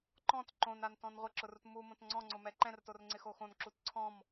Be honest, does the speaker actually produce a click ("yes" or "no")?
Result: yes